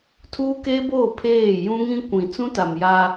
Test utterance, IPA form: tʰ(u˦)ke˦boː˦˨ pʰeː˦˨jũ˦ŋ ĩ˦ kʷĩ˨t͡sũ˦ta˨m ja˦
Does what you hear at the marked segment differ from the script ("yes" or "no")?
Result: yes